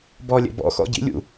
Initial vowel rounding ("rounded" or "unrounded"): rounded